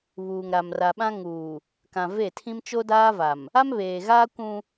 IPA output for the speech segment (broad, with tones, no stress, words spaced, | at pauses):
βuː˨ŋɾa˨mra˨ɓã˦ ŋuː˨ | kã˨ve˦˨tʰĩ˦m t͡ʃo˦daː˦va˨m | a˦mβeː˨ɣaː˦ kʷũ˦